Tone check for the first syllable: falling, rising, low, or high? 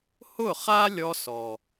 falling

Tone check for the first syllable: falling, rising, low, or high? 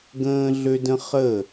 high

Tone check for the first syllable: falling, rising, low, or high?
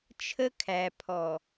high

